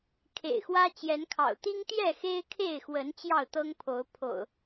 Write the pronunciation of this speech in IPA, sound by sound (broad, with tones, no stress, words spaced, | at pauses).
kʰḛ˨˩ɪ̯xwä˦ t͡ɕjɛ˨˦nkʰɑ̰˨˩ʊ̯ t̪i˦ŋt̪jɛ˥˨ xe˦ɪ̯kʰe˥˨ɪ̯xwə˨˦n t͡ɕjɑ˥˨ʊ̯t̪ɤ˦ŋpʰo˨˦ʊ̯ pʰo̰˨˩ʊ̯